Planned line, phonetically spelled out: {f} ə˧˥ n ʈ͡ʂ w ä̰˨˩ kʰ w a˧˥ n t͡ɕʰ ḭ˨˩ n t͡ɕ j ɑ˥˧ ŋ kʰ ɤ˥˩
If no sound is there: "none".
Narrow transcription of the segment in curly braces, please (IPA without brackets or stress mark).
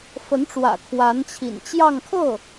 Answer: f